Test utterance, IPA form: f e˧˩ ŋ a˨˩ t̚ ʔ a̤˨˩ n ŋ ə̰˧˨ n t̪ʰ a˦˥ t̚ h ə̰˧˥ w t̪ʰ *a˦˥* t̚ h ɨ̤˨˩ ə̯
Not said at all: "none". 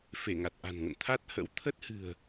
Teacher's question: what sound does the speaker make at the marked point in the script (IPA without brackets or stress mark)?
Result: ə˦˥